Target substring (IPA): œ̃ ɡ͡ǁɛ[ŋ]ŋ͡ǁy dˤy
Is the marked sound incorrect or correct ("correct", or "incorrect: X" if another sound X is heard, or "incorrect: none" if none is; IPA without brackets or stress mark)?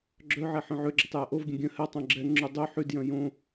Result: correct